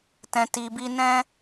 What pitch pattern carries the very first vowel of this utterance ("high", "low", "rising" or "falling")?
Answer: low